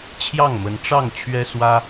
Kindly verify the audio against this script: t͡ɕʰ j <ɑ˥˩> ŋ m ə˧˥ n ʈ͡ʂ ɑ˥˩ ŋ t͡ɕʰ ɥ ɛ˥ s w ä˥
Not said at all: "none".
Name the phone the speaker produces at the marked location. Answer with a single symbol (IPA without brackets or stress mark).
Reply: ɑ˥˩